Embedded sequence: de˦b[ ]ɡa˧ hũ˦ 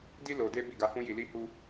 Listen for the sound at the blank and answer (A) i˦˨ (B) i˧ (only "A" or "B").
A